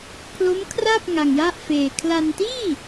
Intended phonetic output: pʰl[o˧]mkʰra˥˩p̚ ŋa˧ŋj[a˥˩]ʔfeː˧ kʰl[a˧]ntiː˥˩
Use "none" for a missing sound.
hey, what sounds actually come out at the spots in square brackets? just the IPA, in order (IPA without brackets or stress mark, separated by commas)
o˦˥, a˥˩, a˧